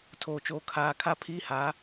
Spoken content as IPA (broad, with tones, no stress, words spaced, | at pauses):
tʰoː˨t͡ʃoː˨ kʰaː˨ kʰa˦pʰiː˦ha˨˦